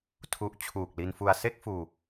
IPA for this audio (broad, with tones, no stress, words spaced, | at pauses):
tʰu˦˥ʔ t͡ɕʰuː˨˩k̚li˧nfu˧a̯ se˥˩k̚ fuː˧